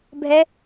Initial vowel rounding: unrounded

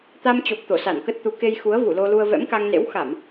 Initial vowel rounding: unrounded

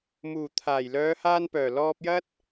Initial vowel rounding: rounded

